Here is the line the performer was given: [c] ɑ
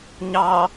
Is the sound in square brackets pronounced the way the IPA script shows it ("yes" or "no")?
no